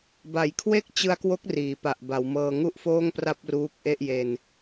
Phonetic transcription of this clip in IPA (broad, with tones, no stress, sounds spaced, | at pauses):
b a˩˦ j kʰ w e˥˩ k̚ t͡ɕ ɯ˧ a̯ k w o˦˥ k̚ r iː˩˦ p a˨˩ ʔ b a˩˦ w m ɤː˧ ŋ u˥˩ ʔ f oː˥˩ ŋ p r a˥˩ p̚ r uː˦˥ k̚ ʔ e˥˩ ʔ j e˧ n